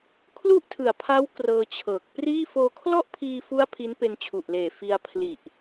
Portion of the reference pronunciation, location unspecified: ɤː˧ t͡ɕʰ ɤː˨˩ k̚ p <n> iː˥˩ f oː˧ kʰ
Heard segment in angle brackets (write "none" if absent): r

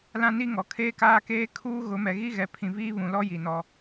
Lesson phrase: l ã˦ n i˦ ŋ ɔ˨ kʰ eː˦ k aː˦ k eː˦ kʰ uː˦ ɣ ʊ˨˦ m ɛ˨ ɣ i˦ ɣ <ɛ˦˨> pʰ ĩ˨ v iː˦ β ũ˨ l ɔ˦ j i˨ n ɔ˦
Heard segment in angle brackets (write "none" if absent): ɛ˨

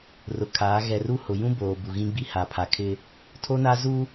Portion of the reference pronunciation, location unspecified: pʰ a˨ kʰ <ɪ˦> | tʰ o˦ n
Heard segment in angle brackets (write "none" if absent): ɪ˦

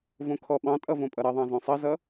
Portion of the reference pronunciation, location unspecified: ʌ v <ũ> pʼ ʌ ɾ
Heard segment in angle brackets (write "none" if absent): õ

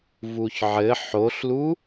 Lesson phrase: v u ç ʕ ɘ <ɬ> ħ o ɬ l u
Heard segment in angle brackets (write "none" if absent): none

